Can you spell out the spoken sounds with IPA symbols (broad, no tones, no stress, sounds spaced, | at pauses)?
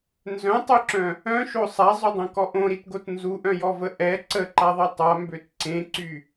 n z œ̃ tˤ y ǁ œ̃ | œ̃ ʃ o sˤ a zˤ y dˤ õ k ɔ ʔ õ ɾ i t ɡ o t n z u ʔ œ̃ j ɔ v ə ʔ ɛ ǀ ə ǃ a ðˤ i tˤ a m b ø t ǀ ẽ ǀ y